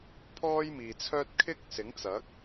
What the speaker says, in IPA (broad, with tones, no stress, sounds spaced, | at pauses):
pʰ ɔː˥ j m iː˨ t͡sʰ œː˥ t̚ kʰ ɪ˥ k̚ s ɪ˨˥ ŋ t͡s ɐ˨˥ k̚